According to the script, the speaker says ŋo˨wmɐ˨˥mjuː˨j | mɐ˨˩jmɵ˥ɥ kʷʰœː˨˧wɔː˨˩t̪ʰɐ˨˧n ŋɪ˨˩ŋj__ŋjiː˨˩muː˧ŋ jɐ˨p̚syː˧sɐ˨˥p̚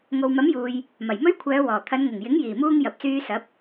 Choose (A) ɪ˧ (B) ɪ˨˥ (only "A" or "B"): B